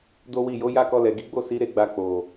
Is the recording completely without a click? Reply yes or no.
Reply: yes